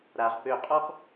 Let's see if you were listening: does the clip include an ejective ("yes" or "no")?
yes